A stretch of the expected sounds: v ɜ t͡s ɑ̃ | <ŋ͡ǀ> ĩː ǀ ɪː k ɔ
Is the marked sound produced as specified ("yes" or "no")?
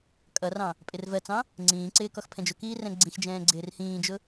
yes